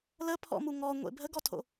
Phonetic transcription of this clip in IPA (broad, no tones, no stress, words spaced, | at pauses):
ləpʰɔ̰mu ŋɔŋʷḛ bʱəɡɔtʰo̰